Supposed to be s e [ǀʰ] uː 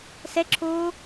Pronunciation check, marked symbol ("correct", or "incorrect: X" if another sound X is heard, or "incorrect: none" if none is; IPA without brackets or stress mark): incorrect: ǁʰ